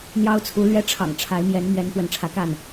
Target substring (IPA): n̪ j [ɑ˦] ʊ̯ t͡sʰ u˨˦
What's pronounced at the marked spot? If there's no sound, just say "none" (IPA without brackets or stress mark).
ɑ˦